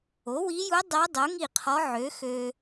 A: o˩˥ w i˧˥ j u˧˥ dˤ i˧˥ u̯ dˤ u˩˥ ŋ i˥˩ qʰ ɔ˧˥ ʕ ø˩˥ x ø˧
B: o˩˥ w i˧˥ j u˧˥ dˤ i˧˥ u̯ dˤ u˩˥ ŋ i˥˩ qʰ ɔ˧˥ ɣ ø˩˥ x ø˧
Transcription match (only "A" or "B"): A